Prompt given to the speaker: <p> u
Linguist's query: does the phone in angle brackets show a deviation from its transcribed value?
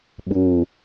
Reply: yes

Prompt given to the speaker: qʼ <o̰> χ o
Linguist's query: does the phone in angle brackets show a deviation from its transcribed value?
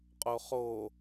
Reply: yes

